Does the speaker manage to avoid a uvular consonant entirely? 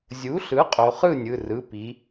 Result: no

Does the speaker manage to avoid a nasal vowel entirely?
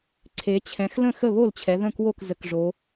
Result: no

